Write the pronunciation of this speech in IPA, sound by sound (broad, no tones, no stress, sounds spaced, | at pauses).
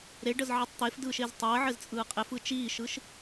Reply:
ɾ e ɖ ə z ʕ i tˤ t̪ e f d ɯː ʃ e z tˤ əː ʕ ɘ z t͡sʼ ɯː qʼ e f ɯ t͡ʃ iː ʃ ɯ ʃ